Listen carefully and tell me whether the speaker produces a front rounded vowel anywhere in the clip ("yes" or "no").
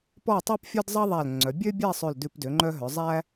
yes